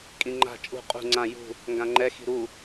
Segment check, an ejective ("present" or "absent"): present